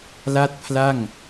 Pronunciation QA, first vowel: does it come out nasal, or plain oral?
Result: oral